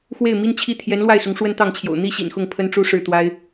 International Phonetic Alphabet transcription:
xwe˥˩ɪ̯mi˥nt͡ɕʰi˥˩ t̪ʰjɛ˧˥nlwa˥˩ɪ̯sʊ˧˥ŋ ʂwə˥nt̪ɑ˥˩ŋt͡ɕʰjo̰˨˩ʊ̯ n̪i˥ɕḭ˨˩n xʊ˥˩ŋpʰə˥nʈ͡ʂu˥ ʂɻ̩˥˩t̪wa˥ɪ̯

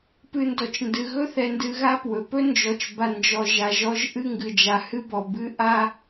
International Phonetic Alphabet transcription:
pɨ˨ndɔ˩t͡ʃndɨ˩ɣɵ˦ θɛ˨ndɨ˨ ɣa˦ pwɵ˩pɵ˥nd͡ʒɔ˨t͡ʃ ba˨ nd͡ʒɔ˨ʒa˨ ʒɔ˦ʒ ʔɨ˦ŋɡɨ˨d͡ʒa˨ hɨ˥bɔ˨ bɨ˦ʔa˥

